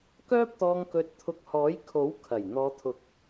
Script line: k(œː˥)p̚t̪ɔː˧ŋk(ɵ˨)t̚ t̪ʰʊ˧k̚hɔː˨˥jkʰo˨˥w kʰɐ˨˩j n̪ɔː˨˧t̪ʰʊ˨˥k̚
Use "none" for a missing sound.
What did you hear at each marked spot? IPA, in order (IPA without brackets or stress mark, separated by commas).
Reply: œː˥, ɵ˧